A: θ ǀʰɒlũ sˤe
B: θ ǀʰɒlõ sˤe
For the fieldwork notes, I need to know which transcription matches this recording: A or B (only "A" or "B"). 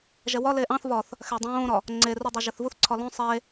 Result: B